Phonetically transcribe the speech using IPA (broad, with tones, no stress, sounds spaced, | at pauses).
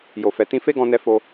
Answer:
j o˨ f ɛ˨ t ĩ˧ f e˦ ɡ ɔ̃˧ n ɛ˧ f o˧